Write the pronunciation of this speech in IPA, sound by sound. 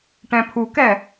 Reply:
ʈ ɛ̃ pʰ u k ɛ

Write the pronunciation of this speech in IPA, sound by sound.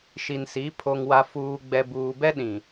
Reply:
ʃ i˨ n s i˨˦ pʰ o˨ ŋ w a˨ f uː˨ ɡ͡b ɛ˨ b uː˨ b ɛ˦ ɗ ĩ˨

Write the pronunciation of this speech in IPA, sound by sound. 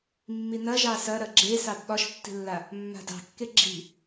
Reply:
mː i n ɐ ʒ ɑ s ɐ ɾ ɐ ɡ͡ǁ e s ɑ d ɓ ɒ ʃ tː i̤ lː a | mː a̤ d ɑ̤ kː e ɡ͡ǁ i̤

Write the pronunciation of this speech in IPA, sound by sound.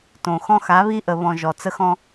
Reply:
t õ˨ x ɔ̃˦ x a˨˦ β i˦ ʔ ə˨ β ɔ̃˨ ʒ ɔ˨ t͡s ə˦ x ɔ̃˦

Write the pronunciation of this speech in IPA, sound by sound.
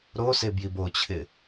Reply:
ɾ o s e b j i b o t͡ɕʰ ɪ

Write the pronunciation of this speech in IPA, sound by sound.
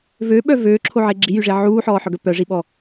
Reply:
v ø ɓ œ v øː ǁʰ o ʕ e ɡ͡ǁ i j y ʐ e ʕ uː ħ ɔː ħ œ ɡ œ p œ ʐ i ɓ ɔ

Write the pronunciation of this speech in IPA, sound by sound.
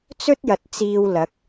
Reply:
t͡s ɵ˥ t̚ j ɐ˨ t̚ t͡s iː˧ w l ɐ˨˥ k̚

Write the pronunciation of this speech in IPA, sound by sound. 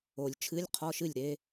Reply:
o˨˩˦ lʲ t͡ʃʰ ɨ˧˥˧ lʲ qʰ ɔ˧˥˧ ʃ ɨ˥˩ lʲ ɾ e˥

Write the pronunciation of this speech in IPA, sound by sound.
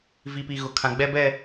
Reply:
v i˨ p i˨ ɣ ʊ˨ kʰ ã˨ ɡ͡b ɛ˦ b ɛ˦˨

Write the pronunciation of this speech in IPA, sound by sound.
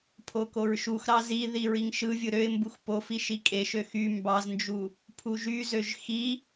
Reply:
pʰ o k o ɹ ʃ u x ɾ ɑ z i ð i ɹ i ŋ ʃ ɯ vʲ ɯ ɾ ø ɪ̯ m b u x p o f i ʃ i kʼ e ʃ ø x y m b ɑ z n d͡ʒ u | pʰ u ʒ y z ø ʒ x i

